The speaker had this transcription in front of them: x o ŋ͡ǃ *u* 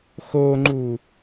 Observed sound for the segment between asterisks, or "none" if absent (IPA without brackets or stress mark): u